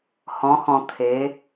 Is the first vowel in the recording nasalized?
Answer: yes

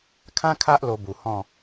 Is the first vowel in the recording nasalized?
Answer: yes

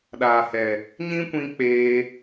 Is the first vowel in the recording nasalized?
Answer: no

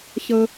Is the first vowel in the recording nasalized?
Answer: no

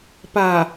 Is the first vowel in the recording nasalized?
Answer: no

